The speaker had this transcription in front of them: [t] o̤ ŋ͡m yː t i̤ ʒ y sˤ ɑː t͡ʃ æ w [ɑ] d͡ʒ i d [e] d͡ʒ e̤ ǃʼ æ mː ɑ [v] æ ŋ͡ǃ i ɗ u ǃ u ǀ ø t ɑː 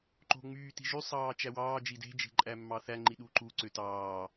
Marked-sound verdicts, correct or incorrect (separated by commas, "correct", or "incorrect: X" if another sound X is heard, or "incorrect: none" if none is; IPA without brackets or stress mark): incorrect: ǃ, incorrect: ɑː, incorrect: e̤, incorrect: θ